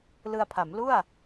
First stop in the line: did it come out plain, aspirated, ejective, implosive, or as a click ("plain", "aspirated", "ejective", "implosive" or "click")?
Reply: aspirated